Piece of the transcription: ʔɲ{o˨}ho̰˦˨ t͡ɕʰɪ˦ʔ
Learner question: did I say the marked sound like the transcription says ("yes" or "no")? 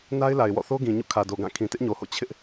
yes